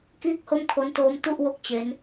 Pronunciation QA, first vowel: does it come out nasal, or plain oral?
oral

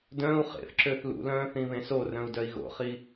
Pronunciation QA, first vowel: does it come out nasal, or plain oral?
nasal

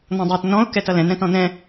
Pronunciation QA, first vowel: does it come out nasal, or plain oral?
nasal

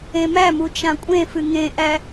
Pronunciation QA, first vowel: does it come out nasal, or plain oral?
nasal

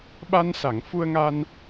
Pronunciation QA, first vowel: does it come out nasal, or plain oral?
oral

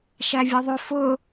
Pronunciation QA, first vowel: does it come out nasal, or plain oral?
oral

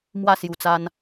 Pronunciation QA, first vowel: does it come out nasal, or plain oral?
oral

